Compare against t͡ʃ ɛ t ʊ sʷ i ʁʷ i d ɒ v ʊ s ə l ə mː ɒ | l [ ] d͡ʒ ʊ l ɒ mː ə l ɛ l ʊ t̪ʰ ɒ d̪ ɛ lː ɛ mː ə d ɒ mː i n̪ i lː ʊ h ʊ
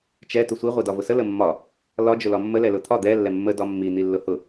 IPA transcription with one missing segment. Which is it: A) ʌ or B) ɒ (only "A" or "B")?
B